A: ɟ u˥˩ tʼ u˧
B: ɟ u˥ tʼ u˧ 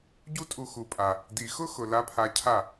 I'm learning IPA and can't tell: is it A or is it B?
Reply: B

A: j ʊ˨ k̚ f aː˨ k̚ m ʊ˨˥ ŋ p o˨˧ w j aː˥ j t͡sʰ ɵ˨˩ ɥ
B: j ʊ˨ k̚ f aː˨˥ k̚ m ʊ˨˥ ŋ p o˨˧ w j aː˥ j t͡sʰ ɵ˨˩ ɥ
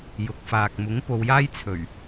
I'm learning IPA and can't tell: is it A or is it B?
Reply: A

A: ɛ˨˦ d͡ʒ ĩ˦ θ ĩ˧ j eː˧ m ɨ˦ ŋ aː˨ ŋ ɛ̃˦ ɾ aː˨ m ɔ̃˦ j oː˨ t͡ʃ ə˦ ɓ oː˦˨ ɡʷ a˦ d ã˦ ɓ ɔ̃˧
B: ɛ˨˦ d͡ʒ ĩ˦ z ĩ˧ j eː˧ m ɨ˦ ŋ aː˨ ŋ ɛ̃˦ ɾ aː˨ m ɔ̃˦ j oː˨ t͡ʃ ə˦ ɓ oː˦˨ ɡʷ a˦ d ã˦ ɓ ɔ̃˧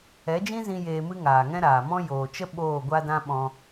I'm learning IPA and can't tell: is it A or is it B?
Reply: B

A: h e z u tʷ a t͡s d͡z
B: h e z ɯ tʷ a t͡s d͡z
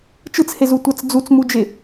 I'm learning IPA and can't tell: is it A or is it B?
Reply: A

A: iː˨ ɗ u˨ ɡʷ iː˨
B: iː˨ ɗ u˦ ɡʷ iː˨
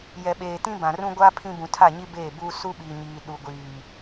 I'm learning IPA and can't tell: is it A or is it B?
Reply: A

